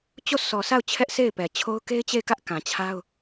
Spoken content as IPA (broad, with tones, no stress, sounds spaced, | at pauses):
t͡ɕ o˦˨ sʰ ɔ˨ s a˦˨ ʊ̯ t͡ɕʰ ɛ˦ ʔ s e˦˨ ɪ̯ p ɛ˨ t͡ɕʰ o˦ ʊ̯ k e˦ ɪ̯ t͡ɕ e˦˨ ɪ̯ k ä˦ ʔ k ã˨ t͡ɕʰ a˦ ʊ̯